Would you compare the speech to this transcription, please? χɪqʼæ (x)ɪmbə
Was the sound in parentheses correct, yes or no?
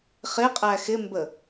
yes